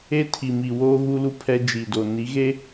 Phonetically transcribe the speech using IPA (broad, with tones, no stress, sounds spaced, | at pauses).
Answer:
e˦ tʰ i˨ m i˨ w oː˦ ɣ u˦ l u˦ pʰ ɛ˦ d͡ʒ iː˨ d o˨ n i˨˦ ɣ e˦